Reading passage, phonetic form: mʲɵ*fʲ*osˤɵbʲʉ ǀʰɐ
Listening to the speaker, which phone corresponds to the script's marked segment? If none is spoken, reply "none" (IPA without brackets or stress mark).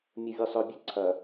vʲ